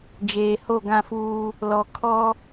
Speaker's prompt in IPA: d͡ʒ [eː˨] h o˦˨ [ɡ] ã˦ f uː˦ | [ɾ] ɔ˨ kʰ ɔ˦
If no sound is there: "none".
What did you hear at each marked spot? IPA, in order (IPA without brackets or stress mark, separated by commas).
eː˨, ɡ, l